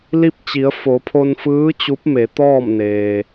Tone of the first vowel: falling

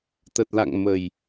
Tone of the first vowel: low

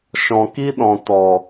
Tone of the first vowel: low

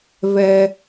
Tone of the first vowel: high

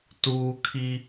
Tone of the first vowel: high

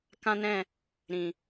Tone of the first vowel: high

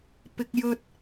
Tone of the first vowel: high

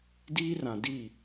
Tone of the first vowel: high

